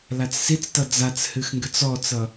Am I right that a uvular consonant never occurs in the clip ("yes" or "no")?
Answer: yes